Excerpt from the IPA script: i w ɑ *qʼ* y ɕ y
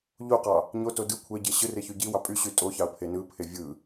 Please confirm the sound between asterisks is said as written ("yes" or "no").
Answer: no